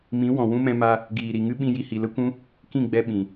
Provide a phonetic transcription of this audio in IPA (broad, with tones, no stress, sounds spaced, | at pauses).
m ĩ˨˦ w ɔ̃˨ w ũ˦ m ɛ̃˧ m a˧ | ɡ iː˨ ɾ i˨ ŋ ɨ˦ ɓ ĩ˧ j i˧ h i˨ l ə˦ kʷ ũ˦ | k ĩ˦˨ ɡ͡b ɛ˧ ɓ ĩ˨